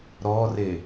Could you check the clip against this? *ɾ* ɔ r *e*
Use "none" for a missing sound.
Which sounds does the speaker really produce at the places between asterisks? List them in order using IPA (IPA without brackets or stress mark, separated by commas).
ɾ, e